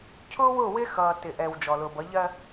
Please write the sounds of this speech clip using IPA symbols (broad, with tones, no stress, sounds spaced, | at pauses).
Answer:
cʰ ʊː˦ w ʊː˦˨ w ɪ˦ x ʌː˨ t ɪ˨ ʔ ɛ˨ w d͡ʒ ɔ˨ l ʊː˨ b ʌ˨˦ ʎ ɜ˦